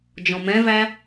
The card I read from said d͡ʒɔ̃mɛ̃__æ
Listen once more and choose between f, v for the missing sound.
v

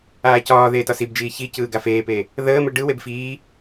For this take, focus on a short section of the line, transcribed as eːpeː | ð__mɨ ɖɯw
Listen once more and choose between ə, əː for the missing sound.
əː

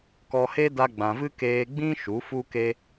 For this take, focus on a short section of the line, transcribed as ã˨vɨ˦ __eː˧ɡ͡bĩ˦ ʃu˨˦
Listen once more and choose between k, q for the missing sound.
k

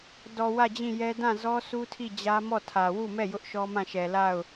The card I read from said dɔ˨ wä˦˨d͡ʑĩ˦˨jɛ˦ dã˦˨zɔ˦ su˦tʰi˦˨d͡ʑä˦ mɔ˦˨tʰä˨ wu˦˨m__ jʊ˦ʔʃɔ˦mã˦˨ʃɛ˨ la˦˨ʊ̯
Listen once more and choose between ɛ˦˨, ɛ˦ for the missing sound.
ɛ˦˨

